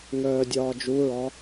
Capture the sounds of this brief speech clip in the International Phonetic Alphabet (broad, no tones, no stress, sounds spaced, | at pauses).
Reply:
ŋ œː dʲ ɒː d͡ʒ u ɹ ɒ